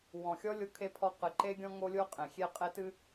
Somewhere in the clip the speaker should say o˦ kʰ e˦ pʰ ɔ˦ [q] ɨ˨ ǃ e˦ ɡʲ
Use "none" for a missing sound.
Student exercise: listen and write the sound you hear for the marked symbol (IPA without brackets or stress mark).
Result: q